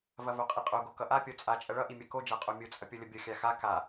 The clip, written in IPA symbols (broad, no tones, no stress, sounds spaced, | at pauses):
v ɐ v o qʼ i qʼ o ɡ o k ʌ ʔ a pʲ ɔ t͡sʼ a t͡ʃʼ ɐ ɭ ʌ ʔ i mʲ ɐ k o d͡ʒ a qʼ o mʲ o t͡sʼ ɐ pʲ ɔ lʲ ʌ bʲ ʌ xʲ a x a k a